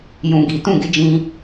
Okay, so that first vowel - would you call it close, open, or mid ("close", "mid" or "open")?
close